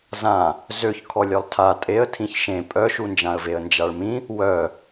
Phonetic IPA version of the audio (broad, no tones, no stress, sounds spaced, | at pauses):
z ã | z ø ç kʰ ɔ lʲ œ lˠ tʰ a tʼ e ə̯ tʰ ĩ ç ʃ ẽ pʼ œ ʃ u n d͡ʒ ã ə̯ v e ə̯ n d͡ʒ a ɭ m ĩ | w œ